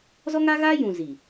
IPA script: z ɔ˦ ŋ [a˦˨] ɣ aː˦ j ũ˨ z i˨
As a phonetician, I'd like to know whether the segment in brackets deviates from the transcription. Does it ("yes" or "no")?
yes